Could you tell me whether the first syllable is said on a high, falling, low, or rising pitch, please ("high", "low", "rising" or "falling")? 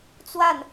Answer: falling